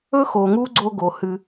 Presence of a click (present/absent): present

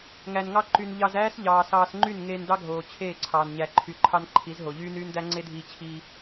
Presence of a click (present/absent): present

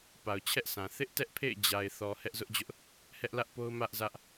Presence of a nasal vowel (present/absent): present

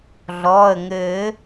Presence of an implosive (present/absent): absent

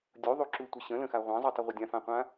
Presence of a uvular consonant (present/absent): present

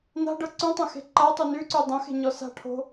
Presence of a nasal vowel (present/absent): present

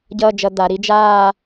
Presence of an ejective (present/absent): absent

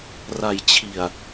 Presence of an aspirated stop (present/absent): present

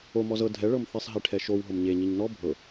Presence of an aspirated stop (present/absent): present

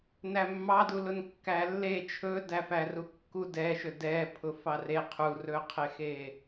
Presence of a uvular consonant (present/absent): present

